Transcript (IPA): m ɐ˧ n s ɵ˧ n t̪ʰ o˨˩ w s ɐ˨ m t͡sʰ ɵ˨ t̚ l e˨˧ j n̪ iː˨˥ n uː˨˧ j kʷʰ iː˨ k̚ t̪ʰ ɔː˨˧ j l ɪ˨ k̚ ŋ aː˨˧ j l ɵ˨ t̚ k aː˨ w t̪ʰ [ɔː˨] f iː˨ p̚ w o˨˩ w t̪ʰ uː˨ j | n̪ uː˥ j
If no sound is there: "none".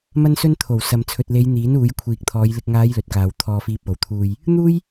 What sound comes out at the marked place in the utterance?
ɔː˨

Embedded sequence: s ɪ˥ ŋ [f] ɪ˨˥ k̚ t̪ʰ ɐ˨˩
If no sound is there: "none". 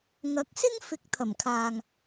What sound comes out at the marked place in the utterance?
f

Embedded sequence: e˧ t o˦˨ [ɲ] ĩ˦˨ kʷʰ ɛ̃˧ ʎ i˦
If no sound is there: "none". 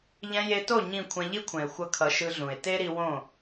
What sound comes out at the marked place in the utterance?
ɲ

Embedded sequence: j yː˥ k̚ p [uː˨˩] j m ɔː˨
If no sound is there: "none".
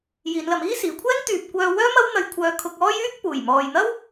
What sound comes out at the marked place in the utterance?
uː˨˩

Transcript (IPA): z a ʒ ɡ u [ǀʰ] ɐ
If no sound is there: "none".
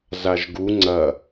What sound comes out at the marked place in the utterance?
ŋ͡ǀ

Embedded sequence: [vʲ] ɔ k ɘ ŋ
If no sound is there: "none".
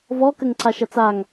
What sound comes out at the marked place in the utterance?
v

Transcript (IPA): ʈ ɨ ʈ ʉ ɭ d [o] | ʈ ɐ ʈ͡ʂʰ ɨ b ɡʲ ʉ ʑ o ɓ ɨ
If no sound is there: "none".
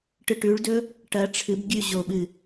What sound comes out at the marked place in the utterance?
ɵ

